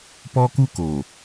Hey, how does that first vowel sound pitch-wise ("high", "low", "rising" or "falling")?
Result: high